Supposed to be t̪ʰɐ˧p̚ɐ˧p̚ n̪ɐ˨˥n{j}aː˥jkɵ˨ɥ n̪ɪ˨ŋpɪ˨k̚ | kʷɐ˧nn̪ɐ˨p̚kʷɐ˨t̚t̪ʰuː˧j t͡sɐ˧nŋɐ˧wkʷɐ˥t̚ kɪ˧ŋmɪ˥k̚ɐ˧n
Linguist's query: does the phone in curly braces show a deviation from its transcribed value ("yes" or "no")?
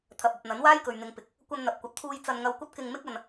yes